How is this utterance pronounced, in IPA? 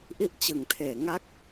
ʔ i˦˥ ʔ t͡ɕ ɯ˨˩ ŋ tʰ eː˨˩ ŋ a˦˥ k̚

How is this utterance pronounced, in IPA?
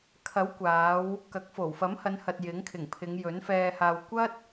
kʰ ɐ˨˥ w kʷ aː˨˧ w | k ɐ˨˥ k̚ f o˨˩ w f ɐ˨˥ m h ɐ˨˧ n h ɐ˨ t̚ j ɪ˨˥ ŋ kʰ ɪ˨˩ ŋ pʰ ɪ˨˧ ŋ j ɵ˨˥ n f ɛː˧ h aː˧ w kʷ ɐ˥ t̚

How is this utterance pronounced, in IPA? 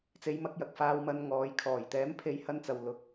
t͡s e˨˧ j m ɐ˧ k̚ j ɐ˨ k̚ f aː˧ w m ɐ˧ n ŋ ɔː˨˥ j kʰ ɔː˨˩ j t̪ ɛː˨˥ m pʰ e˨˧ j h ɐ˥ n t͡s ɐ˧ w l ʊ˧ k̚

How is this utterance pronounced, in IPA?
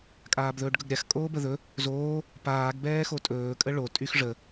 kʼ aː b ð ɵː ɖ ɡ ɵ ɡ ɾʲ a x kʼ oː b ə ð ɵ | z oː | p aː ɡ b ɛː x o tʼ ɵː kʼ ə ɭ o tʼ y x ʐ ə

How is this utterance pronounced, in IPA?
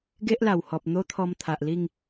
ɡ e˦ ʔ l a˨˩ w h ɔ˨ p̚ n̪ o˦ t̪ʰ ɔ˧ m t̪ʰ a˨ ʔ l i˥˧ ŋ

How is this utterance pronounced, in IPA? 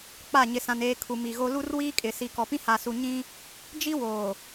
k͡p a˦˨ ɲ ɪ˨ s ã˨ n eː˨ kʰ u˨ m i˨ ɣ o˦ l u˦ r w iː˦ kʼ ɪ˨ s i˨ k ɔ˨ p ĩ˦ h a˨ s u˨ ɲ ĩ˦ | d͡ʒ i˦ w oː˨

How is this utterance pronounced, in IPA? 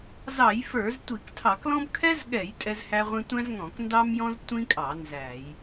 z ɑ˧˩˧ j f ə˞˧˩˧ z tʷ i˧˩˧ k tʰ ɑ˧˩˧ k l ɔ̃˥ b kʰ ɛ˥ z ɠ ɛ˧˩˧ j tʼ ɛ˥ z h æ˥ ʁʷ ĩ˥ tʷ æ̃˥ z ŋ ɔ̃˧˩˧ k n d ɑ˥ m j ɔ̃˥ z tʷ ĩ˥ kʼ ɑ˧˩˧ n z æ˧˩˧ j

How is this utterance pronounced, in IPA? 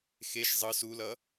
x e ʃ zˤ ɯ s u l ʌ

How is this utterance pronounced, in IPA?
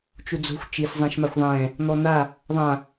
t͡ʃ u d͡z o̤ xʷ t͡ʃ i s zˤ ɛ̃ ʃ m a xʷ ðˤ ɛ̃ | n̪ ɔ n̪ a | ðˤ ã

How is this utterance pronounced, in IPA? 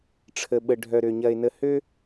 ʈ͡ʂʰ ə˨ ɓ ə˨ ɖʱ œ˨ ɾ ø˨ ɲ ɐ˨ ɪ̯ n ə˨ h ø˦

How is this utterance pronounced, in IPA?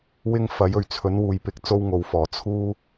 w ɪ˥ ŋ f ɐ˨˥ j ɵ˨˩ ɥ t͡sʰ ɵ˨˥ n w uː˨˧ j p ɪ˧ k̚ t͡s o˥ w ŋ o˨˧ w f ɔː˨˩ t͡sʰ uː˥

